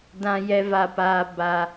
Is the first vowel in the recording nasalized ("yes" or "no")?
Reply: yes